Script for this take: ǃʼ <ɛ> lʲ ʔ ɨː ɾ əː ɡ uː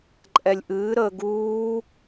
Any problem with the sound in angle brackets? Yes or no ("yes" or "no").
no